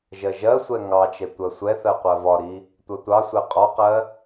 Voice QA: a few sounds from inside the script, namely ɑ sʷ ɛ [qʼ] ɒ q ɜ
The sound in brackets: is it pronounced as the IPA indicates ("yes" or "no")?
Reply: yes